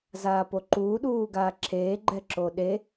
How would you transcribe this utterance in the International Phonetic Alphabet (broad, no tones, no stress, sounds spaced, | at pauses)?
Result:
z aː p o ǃ uː ɗ uː ɡ aː ǁʰ eː ɡ͡ǃ ɛ ǁ o ɗ e